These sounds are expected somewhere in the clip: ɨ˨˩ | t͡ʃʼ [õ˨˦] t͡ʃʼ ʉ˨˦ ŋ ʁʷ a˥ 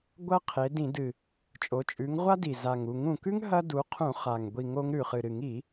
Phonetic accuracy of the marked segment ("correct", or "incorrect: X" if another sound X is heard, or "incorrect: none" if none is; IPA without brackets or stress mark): incorrect: o˨˦